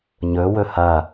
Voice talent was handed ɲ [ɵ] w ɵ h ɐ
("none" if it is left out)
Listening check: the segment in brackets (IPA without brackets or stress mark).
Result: ɵ